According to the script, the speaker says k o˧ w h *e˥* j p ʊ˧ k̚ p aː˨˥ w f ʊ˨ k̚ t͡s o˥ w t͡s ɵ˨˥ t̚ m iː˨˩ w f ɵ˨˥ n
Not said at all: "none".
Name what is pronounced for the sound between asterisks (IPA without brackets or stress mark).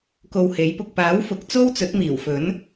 e˨˥